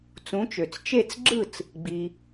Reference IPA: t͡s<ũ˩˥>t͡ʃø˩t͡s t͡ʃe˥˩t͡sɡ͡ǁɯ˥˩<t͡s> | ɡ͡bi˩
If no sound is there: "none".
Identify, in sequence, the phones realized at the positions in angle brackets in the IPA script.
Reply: ũ˩˥, t͡s

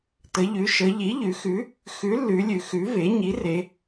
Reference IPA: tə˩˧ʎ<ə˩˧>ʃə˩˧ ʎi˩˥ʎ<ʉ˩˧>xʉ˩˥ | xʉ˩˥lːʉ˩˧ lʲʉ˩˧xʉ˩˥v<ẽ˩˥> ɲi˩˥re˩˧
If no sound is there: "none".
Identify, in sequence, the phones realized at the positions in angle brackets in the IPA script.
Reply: ʉ˩˧, ʉ˩˧, e˩˥

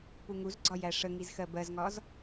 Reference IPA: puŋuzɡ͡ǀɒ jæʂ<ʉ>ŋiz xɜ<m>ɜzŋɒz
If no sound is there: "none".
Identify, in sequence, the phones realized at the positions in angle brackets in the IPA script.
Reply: ə, b

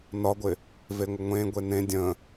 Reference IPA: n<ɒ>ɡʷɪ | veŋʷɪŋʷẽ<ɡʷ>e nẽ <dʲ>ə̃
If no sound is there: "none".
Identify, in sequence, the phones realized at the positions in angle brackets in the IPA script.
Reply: ɒ, ɡʷ, dʲ

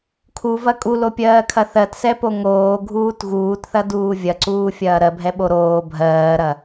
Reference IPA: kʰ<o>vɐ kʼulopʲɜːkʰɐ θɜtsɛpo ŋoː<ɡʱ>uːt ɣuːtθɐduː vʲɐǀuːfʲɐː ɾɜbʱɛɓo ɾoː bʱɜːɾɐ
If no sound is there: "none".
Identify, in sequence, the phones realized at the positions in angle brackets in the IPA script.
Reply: u, ɡʱ

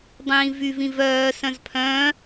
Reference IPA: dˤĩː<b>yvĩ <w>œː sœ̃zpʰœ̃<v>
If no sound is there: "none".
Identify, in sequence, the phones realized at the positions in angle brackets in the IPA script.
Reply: v, v, none

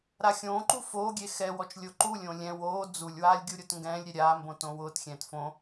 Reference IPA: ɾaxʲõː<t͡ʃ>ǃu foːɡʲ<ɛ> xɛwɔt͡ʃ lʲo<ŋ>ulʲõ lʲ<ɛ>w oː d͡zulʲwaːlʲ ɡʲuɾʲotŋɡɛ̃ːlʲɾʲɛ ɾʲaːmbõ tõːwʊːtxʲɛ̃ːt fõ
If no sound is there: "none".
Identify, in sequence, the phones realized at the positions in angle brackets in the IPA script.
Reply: none, e, ǃ, ɛ̃

